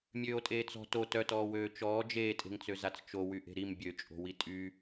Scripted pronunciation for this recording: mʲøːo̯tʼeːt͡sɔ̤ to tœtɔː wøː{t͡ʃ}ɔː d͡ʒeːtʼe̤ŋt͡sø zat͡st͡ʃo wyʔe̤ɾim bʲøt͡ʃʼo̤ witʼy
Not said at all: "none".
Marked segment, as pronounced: t͡ʃ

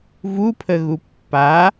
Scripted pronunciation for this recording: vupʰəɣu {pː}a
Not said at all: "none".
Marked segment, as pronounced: pː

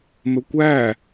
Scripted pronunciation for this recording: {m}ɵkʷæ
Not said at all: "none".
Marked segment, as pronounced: m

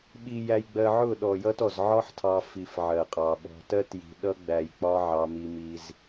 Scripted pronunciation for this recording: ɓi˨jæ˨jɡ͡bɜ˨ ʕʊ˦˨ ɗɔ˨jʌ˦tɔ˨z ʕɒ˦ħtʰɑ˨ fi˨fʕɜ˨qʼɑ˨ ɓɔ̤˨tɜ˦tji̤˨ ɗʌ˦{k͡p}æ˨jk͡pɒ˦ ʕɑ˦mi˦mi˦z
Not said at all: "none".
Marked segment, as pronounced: ɡ͡b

